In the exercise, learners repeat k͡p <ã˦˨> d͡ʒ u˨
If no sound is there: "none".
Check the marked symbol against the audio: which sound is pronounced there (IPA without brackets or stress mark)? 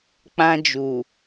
ã˦